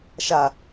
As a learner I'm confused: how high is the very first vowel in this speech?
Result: low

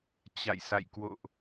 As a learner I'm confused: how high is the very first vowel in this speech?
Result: low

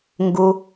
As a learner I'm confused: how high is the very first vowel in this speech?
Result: high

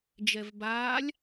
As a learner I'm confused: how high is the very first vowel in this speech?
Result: mid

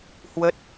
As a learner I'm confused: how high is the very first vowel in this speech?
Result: mid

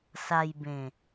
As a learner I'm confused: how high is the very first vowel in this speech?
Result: low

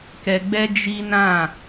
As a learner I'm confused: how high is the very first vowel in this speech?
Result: mid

